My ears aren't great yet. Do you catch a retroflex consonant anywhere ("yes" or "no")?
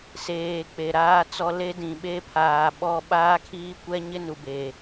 no